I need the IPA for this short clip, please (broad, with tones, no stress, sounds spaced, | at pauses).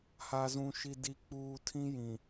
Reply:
h a˨ z ũ˨ ʃ i˨ d i˨ k͡p uː˨ tʰ ĩ˦ j ĩ˨